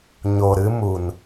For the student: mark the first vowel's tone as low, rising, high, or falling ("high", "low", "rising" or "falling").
low